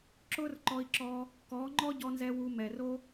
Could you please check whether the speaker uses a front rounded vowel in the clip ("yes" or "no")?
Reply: no